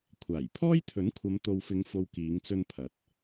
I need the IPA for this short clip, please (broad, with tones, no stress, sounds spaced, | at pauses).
kʷʰ aː˨˩ j pʰ ɔː˥ j t̪ʰ ɵ˨˥ n kʷʰ ɐ˨˧ m t̪ o˨ w f ɪ˨˧ ŋ f o˨ w k iː˨˧ ŋ t͡s ɵ˧ n pʰ ɐ˨˥ t̚